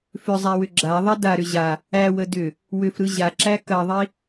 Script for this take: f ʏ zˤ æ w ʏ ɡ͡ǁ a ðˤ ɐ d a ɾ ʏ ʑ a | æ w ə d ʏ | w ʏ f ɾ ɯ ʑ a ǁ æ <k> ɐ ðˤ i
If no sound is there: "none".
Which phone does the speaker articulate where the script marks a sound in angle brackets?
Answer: k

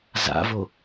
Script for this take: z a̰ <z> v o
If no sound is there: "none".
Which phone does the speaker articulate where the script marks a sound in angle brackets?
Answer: none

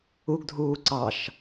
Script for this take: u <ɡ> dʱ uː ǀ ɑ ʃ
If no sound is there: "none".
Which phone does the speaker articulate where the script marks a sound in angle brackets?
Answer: ɡ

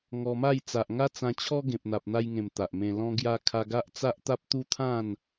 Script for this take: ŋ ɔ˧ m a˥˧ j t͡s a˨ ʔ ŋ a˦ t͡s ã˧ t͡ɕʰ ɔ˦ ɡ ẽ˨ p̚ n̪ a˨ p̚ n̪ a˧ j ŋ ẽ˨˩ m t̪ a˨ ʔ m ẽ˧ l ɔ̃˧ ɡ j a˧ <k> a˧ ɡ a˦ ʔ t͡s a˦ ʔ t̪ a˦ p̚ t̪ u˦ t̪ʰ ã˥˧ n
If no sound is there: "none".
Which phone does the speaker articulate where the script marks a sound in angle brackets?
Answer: kʰ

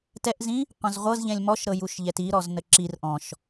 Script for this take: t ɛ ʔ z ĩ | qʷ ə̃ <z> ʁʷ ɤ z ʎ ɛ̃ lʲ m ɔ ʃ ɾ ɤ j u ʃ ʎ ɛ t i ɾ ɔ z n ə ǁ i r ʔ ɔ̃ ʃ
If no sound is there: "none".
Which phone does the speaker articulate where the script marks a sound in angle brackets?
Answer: z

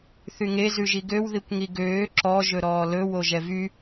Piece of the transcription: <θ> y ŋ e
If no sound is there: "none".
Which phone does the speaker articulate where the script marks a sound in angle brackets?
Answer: θ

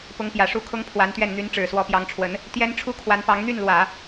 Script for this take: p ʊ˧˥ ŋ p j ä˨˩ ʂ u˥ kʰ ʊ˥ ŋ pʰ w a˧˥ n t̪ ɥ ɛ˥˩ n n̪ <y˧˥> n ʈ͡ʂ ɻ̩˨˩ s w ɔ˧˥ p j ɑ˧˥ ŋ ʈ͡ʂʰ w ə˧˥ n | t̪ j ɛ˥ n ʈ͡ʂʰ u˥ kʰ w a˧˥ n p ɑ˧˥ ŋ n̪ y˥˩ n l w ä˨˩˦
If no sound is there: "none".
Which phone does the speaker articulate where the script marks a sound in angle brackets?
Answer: y˧˥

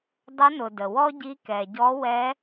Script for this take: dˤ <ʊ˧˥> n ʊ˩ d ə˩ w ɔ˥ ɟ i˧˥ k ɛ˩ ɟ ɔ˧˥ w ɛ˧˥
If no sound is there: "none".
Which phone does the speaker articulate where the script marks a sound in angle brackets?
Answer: ə˧˥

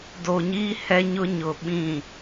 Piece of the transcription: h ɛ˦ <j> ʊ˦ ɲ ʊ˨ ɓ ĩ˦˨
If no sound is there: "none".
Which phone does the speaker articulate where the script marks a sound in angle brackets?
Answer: ɲ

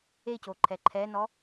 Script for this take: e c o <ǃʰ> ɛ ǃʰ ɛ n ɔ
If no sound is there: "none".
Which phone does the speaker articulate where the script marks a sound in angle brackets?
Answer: ǃʰ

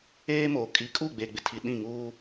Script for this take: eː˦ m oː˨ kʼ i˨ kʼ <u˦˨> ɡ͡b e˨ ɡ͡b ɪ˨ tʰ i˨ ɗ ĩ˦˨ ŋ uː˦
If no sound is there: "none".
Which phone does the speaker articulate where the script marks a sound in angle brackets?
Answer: u˦˨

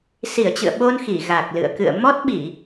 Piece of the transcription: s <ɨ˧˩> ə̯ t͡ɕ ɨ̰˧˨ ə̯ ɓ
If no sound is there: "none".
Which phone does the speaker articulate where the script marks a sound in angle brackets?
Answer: i˧˩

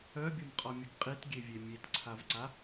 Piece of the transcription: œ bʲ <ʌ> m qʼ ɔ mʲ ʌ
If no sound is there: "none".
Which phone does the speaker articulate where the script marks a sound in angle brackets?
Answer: ʌ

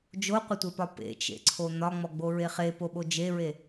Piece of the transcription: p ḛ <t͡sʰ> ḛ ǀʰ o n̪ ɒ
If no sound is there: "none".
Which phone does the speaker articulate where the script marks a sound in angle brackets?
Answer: t͡ʃ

